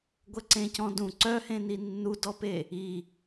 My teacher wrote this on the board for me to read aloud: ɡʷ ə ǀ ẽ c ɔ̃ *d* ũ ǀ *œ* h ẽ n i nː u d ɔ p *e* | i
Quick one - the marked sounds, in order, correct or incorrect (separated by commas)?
correct, correct, correct